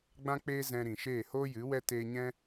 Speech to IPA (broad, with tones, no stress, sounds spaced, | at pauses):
ɡ͡b ã˦ k͡p eː˦ z ɛ̃˧ ɾ ĩ˨ ʃ eː˦˨ h oː˦ j ɨ˨˦ w ɛ˦ t eː˧ ɲ ɛ̃˦